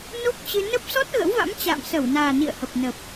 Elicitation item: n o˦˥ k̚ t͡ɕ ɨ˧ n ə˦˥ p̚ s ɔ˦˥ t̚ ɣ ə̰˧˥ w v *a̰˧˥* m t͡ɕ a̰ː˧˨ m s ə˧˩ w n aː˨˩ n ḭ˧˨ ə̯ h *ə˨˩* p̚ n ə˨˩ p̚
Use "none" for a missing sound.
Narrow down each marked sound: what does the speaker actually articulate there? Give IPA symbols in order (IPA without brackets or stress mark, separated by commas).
a̰˧˥, ə˨˩